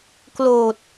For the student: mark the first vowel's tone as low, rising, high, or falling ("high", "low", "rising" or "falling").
low